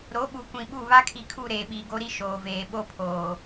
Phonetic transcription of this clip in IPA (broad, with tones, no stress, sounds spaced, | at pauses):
ɾ o˨˦ ɓ u˨ kʷ ĩ˨ ɓ u˦˨ β a˦ kʰ i˨ kʰ u˦˨ ɾ eː˨ ɓ iː˨ ɡ o˦ ɾ i˦ ʃ oː˨ v eː˨ ɓ o˦ pʰ oː˨